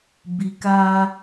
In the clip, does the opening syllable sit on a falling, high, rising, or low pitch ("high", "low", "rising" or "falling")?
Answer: low